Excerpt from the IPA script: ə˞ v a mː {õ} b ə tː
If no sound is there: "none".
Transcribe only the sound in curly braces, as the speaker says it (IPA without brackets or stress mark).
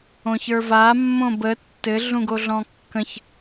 õ